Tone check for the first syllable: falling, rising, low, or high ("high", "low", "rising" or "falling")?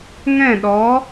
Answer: falling